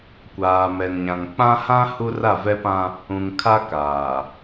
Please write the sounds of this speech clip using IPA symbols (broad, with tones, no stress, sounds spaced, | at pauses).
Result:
kʷ aː˨ m ɛ˨ n ɲ ã˨ ŋ k͡p ã˦ h ã˦ h u˦ r a˦˨ v ɛ˦ p ã˦ | ũ˨ ŋ kʰ a˦ k aː˨